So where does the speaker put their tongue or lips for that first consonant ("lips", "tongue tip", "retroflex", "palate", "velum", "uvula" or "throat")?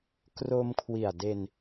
velum